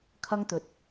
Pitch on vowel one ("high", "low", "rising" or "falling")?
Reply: high